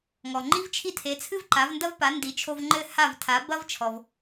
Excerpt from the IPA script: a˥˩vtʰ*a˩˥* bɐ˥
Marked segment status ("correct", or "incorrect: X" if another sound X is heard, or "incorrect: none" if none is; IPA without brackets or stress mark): correct